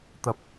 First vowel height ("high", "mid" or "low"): low